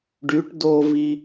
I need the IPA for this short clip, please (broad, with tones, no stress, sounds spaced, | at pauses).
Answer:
ɖ y˩˥ ʈ d o˧ v i˧